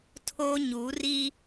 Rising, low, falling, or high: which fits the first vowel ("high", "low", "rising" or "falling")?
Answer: high